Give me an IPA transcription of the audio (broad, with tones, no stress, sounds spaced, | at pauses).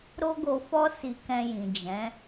ɾ o˦ ɡ o˧ f ɔ˦ s i˧ k ɛ̃˧ j ĩ˨ d͡ʒ ɛ̃˨˦